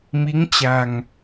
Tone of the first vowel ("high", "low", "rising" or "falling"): rising